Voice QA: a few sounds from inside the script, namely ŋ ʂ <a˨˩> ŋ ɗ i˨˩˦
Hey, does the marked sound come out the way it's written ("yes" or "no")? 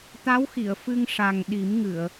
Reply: yes